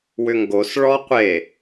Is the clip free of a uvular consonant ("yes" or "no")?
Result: no